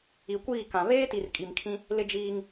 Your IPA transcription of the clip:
i˨ kʷ iː˦˨ k ã˨ β eː˦ t i˨ r kʼ i˨ m kʰ ĩ˦ | l ɪ˦ d͡ʒ iː˦ ŋ

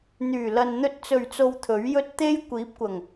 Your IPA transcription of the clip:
n̪ yː˨˩ l ɐ˨ n n̪ ɵ˧ t̚ t͡s ɵ˨˩ ɥ t͡s o˨ w t̪ʰ ɵ˨˥ ɥ j ɵ˥ t̚ t̪ e˥ j kʷ iː˨˥ p̚ kʷ ɐ˨˩ ŋ

